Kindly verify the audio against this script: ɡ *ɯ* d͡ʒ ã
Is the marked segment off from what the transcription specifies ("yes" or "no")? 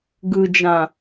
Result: no